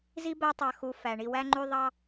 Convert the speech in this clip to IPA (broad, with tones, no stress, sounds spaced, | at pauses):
z i˥ b æ˦ tˤ ɑ˨ x u˨ f æ˩ ɳ i˨ w æ˦ ŋ͡ǃ y˦ ðˤ ɑ˦